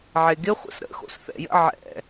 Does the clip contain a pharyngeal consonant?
yes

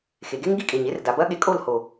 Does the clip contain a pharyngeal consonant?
no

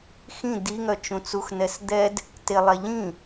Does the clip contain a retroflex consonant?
no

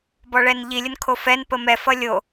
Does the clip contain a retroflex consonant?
yes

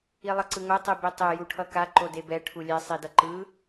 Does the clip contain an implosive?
no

